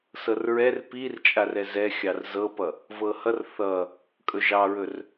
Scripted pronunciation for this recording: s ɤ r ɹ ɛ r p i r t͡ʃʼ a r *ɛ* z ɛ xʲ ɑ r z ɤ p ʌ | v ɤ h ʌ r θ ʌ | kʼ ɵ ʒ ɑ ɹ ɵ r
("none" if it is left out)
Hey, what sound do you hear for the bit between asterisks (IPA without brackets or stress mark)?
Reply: ɛ